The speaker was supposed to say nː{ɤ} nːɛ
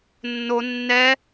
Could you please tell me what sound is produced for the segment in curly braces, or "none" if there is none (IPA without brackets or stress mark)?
o